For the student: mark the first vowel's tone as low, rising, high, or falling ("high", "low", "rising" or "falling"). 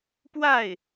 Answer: falling